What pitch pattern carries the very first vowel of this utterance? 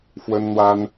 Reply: high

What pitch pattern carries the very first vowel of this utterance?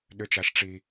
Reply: high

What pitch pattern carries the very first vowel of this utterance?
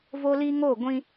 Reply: high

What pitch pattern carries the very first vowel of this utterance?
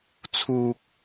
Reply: high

